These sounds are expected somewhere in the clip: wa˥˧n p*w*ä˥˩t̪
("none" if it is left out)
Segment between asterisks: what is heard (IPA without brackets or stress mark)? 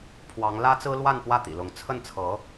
w